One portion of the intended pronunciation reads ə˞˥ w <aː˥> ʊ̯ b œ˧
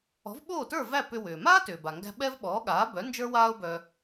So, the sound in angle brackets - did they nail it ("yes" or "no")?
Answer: yes